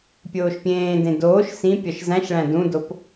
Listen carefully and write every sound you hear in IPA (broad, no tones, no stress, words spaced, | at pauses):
pʲoːʃpʲẽːdẽ doːʃ sĩ pʲɒʃzæ̃ʃɭæ̃ dũdop